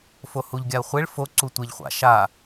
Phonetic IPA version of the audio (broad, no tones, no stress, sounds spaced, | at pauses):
f o h u ʎ ɡʲ a ə̯ χʷ e ɭ f o ǀ u tʷ e ʎ χʷ a̰ ʃ a